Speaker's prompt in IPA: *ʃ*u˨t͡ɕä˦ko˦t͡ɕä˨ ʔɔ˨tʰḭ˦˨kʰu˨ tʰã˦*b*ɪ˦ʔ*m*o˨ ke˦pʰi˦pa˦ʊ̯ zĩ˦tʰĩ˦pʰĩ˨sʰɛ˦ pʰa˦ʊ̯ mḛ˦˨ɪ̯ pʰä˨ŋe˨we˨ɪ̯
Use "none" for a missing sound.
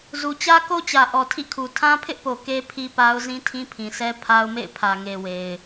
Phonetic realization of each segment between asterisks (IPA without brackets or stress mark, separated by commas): z, pʰ, p